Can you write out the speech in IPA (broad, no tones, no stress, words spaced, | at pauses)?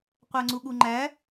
qʷæŋ͡ǀuɠuŋ͡ǃæ